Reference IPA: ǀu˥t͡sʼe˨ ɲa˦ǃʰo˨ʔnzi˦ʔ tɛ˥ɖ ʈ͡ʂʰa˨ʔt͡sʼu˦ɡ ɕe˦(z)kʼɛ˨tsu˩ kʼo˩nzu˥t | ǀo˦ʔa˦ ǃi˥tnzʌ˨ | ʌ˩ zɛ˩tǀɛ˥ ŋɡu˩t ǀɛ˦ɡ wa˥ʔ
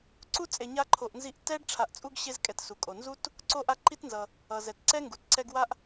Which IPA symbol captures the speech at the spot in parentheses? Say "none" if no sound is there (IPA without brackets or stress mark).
z